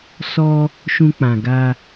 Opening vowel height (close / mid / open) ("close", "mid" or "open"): mid